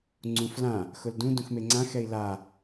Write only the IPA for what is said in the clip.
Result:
ŋ͡ǀ ũ f l ã | x ʊ l d ũ d ũ x m e ŋ͡ǀ ã x ɛ i̯ l a

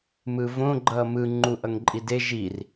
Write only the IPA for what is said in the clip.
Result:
m ɯ v õ ɡ͡ǃ ʌː m ɯ ŋ͡ǃ u ʔ ʌ ŋ ǃʼ i d e ʒ i r

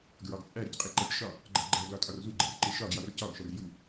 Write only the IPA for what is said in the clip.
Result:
ɡ ɹ ɒ ɡ t͡sʼ æ ɾ i c qʼ e ǃ æ c ʃ ɒ | ɡ͡ǃ æ ɡ͡ǃ æ ɡ l ɒ tʼ ɒ r z u ɡ͡ǃ e r ǃ e ʃ ɒ ɡ j ɒ r c ɒ ɡ ʃ ɒ r j u

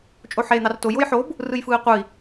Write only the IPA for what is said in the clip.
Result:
t͡ʃʼ o ħ eː n̪ ɑ r t o j o j ħ o b | r ɯ j f ɯː i̯ qʷ ɯ i̯

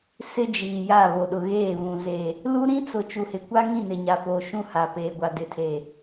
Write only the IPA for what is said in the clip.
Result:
s ɪ˦ d͡ʒ iː˨ j a˦˨ β o˨ ɗ ʊ˨ ɣ eː˦˨ β ũ˨ z e˨ | l u˦ ɾ ĩ˦ t͡s ʊ˨ t͡ʃ u˨ h ɪ˨ kʷ a˦ ŋ ĩ˦˨ n ɪ˨ ɲ a˨ p o˨ ʃ ũ˦ h a˨ p eː˨ ɡʷ a˨ d ɪ˨ tʰ e˨

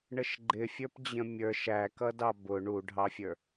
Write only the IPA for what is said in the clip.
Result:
ɳ ə ʃ ɡ͡ǃ ɪ fʲ ə˞ p d͡ʑ ə̃ mʲ ə˞ ʃ æ k ʌ d ɑ b ʊ ɳ u ɖʱ ɑ fʲ ə˞

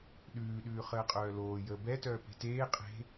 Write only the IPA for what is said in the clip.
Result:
ɗ ʉː ɗ ʉː χ əː qʼ œː l oː j əː b ɛ t œː p e̤ t eː qʼ e̤

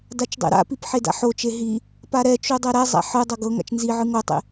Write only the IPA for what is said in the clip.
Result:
d a t͡ʃ dˤ ḛ ɾ a̰ p i p ħ e d a̰ ħ o t͡ʃ e ɦ i | p a ɾ ɛ t͡ʃ u dˤ ɛ ɾ ɛ zˤ a̰ ħ ɯ dˤ ɤ ɡ ɤ ŋ a̰ t͡ʃ n z i ʕ ɯ ŋ o tˤ ḛ

